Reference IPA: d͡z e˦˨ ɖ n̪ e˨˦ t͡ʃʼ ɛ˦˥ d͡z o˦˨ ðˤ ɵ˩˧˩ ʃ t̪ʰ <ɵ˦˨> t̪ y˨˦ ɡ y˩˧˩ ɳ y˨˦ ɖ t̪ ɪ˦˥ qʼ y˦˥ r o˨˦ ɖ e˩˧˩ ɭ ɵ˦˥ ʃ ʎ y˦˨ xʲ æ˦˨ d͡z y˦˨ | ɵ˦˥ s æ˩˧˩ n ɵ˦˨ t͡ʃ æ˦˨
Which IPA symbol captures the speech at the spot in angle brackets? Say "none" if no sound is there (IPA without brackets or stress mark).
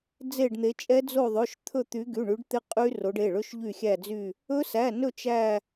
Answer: ɵ˦˨